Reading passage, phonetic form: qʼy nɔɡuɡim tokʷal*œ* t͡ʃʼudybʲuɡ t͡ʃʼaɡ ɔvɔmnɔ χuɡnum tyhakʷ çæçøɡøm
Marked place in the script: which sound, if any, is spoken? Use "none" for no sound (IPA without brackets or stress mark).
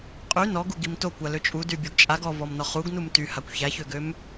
ø